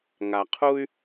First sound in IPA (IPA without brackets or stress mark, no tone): ŋ